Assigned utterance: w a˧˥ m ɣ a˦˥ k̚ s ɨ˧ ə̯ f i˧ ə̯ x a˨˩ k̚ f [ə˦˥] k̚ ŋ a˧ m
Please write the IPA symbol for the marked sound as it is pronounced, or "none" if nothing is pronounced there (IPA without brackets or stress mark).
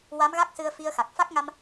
a˦˥